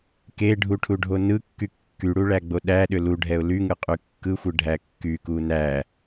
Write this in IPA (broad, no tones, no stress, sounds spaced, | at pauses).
k e ɖʱ u ʈʰ u ɖʱ o n ɯ kː y kː y ɽ u ɭ æ ɡ͡b o ɗ æ ɗ ʏ l u ɖʱ ɛ ʊ̯ l y ŋ ɯ qʼ y kː ɯ xʷ ɯ ɖʱ æ kː y k u n æ